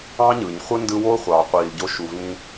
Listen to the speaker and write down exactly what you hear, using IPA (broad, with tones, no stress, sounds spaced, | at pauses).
ɑ̃˥ ɲ ɯ˩ ɲ χʷ ɯ˥ n d ɯ˦ w o˥ χʷ ɑː˨ qʷ iː˨ l ɟ o˦ ʃ u˨ v ĩ˦